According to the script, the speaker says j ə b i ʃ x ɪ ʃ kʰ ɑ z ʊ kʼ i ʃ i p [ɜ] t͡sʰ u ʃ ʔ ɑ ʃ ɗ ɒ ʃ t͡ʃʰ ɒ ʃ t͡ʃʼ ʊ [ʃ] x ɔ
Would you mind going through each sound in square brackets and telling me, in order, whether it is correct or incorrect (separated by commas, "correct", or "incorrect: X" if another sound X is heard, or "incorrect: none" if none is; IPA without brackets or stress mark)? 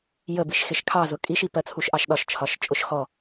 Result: correct, correct